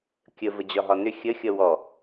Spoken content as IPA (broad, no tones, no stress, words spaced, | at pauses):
kʲə vəd͡ʑɒɦɒnʏ xʲəxʲʌ wɔ